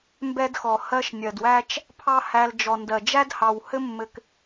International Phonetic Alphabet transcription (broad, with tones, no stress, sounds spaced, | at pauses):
m b ɛ˦ d x ɔ˨ h ɜ˦ ʃ nʲ ɜ˨ d w æ˦ t͡ʃ | pʰ ɑ˦ h æ˧ l d͡ʒ ɔ˨ n d ɜ˨ d͡ʒ æ˦ d h ɑ˨ w h ɘ˦ mː ɘ˧ k